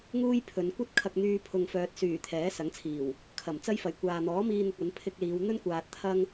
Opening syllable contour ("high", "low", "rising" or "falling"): high